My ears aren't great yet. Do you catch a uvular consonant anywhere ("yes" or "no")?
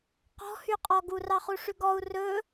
yes